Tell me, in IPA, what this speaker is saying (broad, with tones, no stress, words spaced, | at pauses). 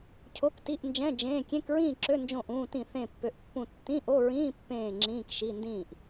cʰo˧˥˧kti˧˥˧ʔnd͡ʒɛ̃˧˥˧ d͡ʒẽː˧˥˧ kʲẽ˧˥˧kɹĩː˥˨ǁø˧˥˧ nd͡ʒõ˥˨ʔũː˧˥˧tĩ˥˨ θẽ˥˨pːø˧˥˧ʔpːũ˥˨ tːĩ˧˥˧ʔo˧˥˧ɹĩː˧˥˧ pːẽː˥˨ŋ͡ǁĩː˧˥˧k ʃi˧˥˧ndĩː˥˨ʔ